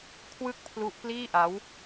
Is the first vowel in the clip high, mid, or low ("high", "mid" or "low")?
high